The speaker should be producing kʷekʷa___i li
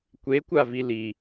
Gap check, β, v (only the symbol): v